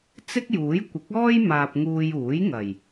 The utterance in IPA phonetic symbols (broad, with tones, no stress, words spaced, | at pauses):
t͡sɪ˥k̚juː˨˥j kʷɪ˨˥k̚ɔː˥j maː˧p̚ŋuː˧j uː˨˥jŋɐ˨˩j